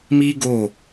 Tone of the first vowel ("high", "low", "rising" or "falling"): high